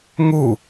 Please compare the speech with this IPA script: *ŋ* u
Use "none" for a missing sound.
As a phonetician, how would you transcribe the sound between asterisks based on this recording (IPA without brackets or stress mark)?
ŋ